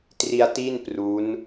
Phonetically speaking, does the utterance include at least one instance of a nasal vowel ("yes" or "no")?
no